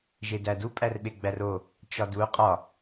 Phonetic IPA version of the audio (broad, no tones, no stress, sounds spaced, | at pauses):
ʒ e d æ d u pʼ æ r ɓ e ɡ͡b æ r o | t͡ʃ ɒ d u qʼ ɒ